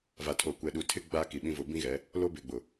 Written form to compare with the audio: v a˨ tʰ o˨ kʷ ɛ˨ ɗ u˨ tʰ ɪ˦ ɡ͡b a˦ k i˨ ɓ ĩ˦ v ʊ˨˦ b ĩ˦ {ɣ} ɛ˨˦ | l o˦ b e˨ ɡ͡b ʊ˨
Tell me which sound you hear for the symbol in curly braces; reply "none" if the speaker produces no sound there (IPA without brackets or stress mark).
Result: ɣ